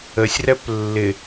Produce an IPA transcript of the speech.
ə sʲ r ɛ p lː ɪ

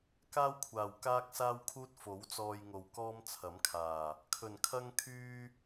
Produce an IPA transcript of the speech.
k aː˥ w kʷʰ aː˨˩ w k aː˥ k̚ s aː˥ w kʰ uː˥ t̚ f o˨˥ w t͡s ɔː˧ j ŋ o˨ w k ɔː˥ m t͡sʰ ɐ˨˥ m kʰ aː˨˩ | kʰ ɵ˨˩ n kʰ ɐ˥ ŋ kʰ yː˥

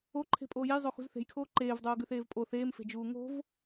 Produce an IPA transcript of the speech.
o ǃʰ e̤ pʼ oː j e j zˤ o x ṳ z θ e̤ j kʰ oː ǃ eː v dˤ oː ɡ ʉ θ eː v pʼ o θ eː m f e̤ d͡ʒ uː ŋ o̤ v

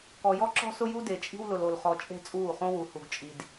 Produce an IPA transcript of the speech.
k ɔ˨ j ɔ˦ ǁ ɔ̤˦ s ʊ˦ j u˦ d e˨ t͡ʃʼ i̤˦ w l ʊ˨ l o˨ l χ ɔ˨ t͡ʃʼ e̤˦˨ t͡sʼ uː˦˨ χ õ˦ w u˨ h u˨ ɡ t͡ʃʼ i˨ d

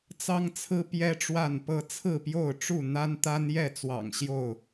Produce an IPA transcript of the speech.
t͡s ɑ˦ ŋ t͡sʰ ɹ̩˦ p j ɛ˦ ʈ͡ʂ w a˥˨ n p ɤ˦ t͡sʰ ɹ̩˥˨ p j o˥˨ ʊ̯ ʈ͡ʂ u˥˨ n̪ a˦ n t̪ a˦ n j ɛ˥˨ t͡s w ɑ̰˨˩ ŋ ɕ j o˥˨ ʊ̯

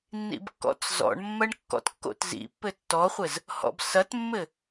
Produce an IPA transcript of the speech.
nː ḭ b kː ɔ̰ t͡s z ɔ̰ ɳ mː ɐ ɳ kː ɔ̰ t kː o̰ t z ḭ pː ɘ tː ɔ χʷ ɘ z | h ɔ̰ b s ɐ t mː ɘ

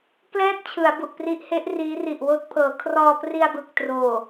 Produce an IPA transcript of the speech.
k l ɛː˥˩ t̚ t͡ɕʰ ɯ˩˦ a̯ b u˨˩ ʔ p r i˦˥ ʔ h e˦˥ ʔ r iː˦˥ r i˨˩ ʔ w oː˥˩ t̚ pʰ ɤː˩˦ kʰ r ɔː˧ p r i˧ a̯ b ɯ˨˩ k̚ t r oː˨˩

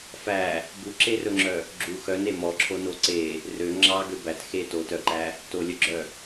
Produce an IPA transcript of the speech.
f æ | b u ǁ e r ɵ ŋ͡ǁ œ | ɡ͡ǁ u x œ n e m ɔ ǁʰ o n o ǀ e | r ø ŋ͡ǁ ɑ ɡ ø b æ t x e t o t œ ǃ æ | t o lʲ œ ɡ͡ǁ œ

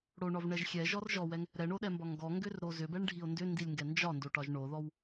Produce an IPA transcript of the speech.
ɽ o ɳ ɒ v ɳ ɛ ʒ xʲ ɛ ʒ ɔ r ʒ ɔ w ɛ ŋ | ɾ ɛ ɳ o ɗ ɛ m b ɒ ŋ ɡ ɔ ŋ ɡ ʏ r ɾ o z ʏ b ɛ ɳ ɖʱ i o̯ n d ʏ n d i lʲ ŋ ɡ ɛ n d͡ʒ ɒ n d o ʈ ɒ ʒ ɳ o ð ɔ w

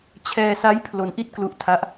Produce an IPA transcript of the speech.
t͡ɕʰ ɛː˧ s a˦˥ j pʰ l o˧ n ʔ i˥˩ t̚ k l u˦˥ ʔ tʰ a˦˥ ʔ

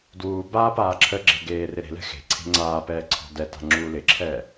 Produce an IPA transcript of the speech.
d w uː b aː p aː ǁʰ ə ɡ͡ǁ e̤ ɡ eː r ɪ ɾ e̤ l ɛ̤ x e̤ ǀʰ e̤ ŋ͡ǀ aː p ɛː ǀʰ ɔ̤ d ɛ t a̤ ŋ͡ǁ uː l ɪ ǁʰ ɛː

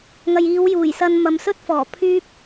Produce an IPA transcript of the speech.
ŋ ɐ˨ j iː˨˧ w j uː˨˩ j s ɐ˧ n m ɐ˨ m s ɵ˥ t̚ f ɔː˨˩ pʰ yː˥ p̚

